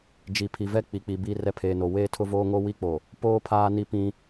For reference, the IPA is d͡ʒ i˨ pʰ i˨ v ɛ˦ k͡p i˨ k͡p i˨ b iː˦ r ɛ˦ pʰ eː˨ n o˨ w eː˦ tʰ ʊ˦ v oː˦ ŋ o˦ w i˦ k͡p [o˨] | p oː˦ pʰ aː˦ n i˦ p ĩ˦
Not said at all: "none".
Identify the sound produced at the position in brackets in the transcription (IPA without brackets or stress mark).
o˨